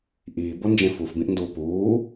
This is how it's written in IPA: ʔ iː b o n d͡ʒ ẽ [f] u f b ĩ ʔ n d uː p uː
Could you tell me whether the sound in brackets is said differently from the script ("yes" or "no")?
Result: no